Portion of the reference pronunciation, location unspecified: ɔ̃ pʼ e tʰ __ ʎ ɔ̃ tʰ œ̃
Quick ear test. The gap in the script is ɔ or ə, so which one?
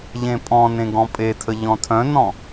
ə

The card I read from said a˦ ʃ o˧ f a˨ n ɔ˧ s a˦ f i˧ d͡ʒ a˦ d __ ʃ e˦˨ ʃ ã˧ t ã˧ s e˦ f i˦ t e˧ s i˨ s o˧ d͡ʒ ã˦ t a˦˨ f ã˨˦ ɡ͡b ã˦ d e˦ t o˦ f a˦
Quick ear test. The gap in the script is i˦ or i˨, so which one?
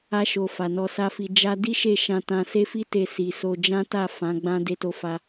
i˦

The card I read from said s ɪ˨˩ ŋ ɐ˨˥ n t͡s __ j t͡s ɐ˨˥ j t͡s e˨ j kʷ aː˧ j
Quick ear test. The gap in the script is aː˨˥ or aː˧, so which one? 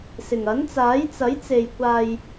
aː˨˥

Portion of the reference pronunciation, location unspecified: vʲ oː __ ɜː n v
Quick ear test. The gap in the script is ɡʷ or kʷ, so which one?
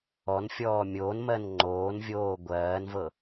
ɡʷ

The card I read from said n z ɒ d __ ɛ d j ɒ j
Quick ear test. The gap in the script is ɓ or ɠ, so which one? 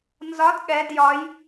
ɠ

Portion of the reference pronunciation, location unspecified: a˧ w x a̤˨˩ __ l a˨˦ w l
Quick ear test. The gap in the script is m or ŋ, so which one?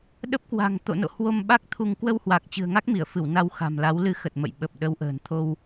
m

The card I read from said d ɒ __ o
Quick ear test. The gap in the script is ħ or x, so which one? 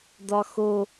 x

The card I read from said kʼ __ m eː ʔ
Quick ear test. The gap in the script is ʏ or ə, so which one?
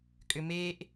ʏ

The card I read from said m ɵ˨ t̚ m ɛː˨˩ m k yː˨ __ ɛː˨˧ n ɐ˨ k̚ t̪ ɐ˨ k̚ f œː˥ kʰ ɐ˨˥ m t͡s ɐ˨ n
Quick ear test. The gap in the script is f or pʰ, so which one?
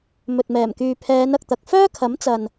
pʰ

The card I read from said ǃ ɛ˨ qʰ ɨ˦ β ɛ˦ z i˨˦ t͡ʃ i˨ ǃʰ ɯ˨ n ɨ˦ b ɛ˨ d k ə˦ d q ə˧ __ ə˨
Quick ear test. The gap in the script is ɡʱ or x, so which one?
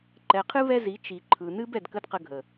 ɡʱ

